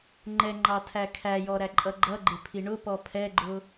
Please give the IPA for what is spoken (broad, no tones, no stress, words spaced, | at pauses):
ŋ͡ǃɛŋ͡ǃɑtʰæ kʰæjɔɾæǃʼʌ ɡ͡ǃʌɡ͡ǃɪpʰi ɳʊpɔ pʰɛɡ͡ǃʊ